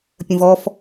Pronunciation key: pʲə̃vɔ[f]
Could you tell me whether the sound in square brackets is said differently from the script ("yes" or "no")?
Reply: no